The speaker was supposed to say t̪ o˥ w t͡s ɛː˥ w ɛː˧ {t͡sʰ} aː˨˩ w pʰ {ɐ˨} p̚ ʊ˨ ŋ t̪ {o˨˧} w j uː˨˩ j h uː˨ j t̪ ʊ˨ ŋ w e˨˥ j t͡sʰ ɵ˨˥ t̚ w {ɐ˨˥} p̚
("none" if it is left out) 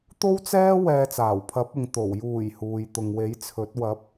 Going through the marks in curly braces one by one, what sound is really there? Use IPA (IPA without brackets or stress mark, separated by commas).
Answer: t͡s, ɐ˨˥, o˨˩, ɐ˨˥